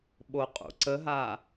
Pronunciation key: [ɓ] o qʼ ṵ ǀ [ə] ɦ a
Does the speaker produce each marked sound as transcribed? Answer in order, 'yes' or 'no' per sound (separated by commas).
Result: yes, yes